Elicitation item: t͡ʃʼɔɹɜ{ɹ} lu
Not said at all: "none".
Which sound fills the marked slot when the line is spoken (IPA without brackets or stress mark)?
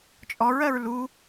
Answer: ɹ